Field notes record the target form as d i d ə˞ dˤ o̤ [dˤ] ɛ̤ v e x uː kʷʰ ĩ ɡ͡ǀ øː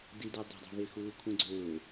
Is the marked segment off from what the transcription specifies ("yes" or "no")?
no